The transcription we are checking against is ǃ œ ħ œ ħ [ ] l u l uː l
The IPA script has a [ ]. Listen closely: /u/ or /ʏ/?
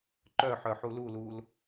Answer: u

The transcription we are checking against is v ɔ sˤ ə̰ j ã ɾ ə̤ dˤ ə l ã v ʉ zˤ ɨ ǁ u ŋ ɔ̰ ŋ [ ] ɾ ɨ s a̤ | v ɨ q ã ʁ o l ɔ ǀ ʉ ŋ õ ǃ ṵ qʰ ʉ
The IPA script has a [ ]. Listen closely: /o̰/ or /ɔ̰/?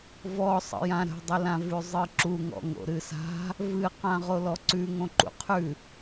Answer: o̰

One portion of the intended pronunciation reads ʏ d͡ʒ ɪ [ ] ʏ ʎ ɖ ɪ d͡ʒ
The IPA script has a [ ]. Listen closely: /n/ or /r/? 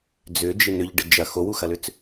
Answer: n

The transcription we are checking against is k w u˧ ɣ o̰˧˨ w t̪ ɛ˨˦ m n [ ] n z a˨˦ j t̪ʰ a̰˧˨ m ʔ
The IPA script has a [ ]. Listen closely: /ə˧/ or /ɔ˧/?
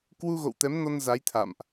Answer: ɔ˧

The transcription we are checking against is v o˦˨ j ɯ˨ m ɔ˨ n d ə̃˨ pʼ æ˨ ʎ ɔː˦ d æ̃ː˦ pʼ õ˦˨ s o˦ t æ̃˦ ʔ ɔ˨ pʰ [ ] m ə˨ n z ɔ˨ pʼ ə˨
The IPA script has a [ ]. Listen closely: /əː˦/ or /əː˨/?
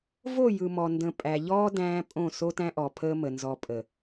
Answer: əː˦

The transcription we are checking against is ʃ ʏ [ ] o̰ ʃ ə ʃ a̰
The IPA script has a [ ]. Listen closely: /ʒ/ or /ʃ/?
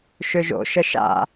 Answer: ʒ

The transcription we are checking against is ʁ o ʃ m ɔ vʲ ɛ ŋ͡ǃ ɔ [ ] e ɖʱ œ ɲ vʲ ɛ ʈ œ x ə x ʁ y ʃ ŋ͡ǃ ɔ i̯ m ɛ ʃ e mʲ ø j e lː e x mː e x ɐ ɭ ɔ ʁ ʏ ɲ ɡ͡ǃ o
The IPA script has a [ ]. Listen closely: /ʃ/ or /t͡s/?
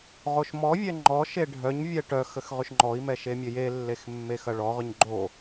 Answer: ʃ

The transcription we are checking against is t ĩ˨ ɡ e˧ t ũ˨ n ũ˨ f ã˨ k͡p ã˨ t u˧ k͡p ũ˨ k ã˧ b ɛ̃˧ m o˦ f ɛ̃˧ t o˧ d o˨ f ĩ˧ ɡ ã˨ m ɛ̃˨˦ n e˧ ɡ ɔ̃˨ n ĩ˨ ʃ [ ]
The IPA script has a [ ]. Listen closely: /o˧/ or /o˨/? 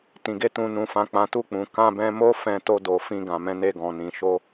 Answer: o˧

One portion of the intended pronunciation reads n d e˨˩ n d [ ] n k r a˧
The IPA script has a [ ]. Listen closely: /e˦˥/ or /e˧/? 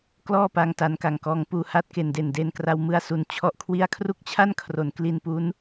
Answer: e˧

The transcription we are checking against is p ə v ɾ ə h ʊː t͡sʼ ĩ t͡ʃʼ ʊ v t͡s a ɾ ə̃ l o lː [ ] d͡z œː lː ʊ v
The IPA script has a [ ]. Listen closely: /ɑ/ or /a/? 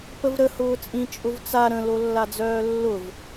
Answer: a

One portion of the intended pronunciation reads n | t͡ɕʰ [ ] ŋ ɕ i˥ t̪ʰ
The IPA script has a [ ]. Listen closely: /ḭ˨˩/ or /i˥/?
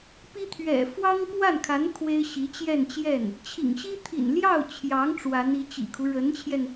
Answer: ḭ˨˩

